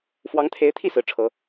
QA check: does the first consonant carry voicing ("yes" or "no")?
no